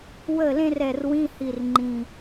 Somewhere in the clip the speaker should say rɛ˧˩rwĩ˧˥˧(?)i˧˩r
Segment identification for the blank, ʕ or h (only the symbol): h